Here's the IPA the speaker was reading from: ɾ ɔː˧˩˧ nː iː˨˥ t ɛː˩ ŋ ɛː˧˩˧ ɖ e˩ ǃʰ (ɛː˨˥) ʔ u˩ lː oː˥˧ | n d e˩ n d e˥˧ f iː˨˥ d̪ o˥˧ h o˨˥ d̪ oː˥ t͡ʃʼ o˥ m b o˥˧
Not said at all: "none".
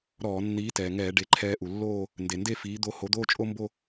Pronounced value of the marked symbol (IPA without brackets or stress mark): ɛː˧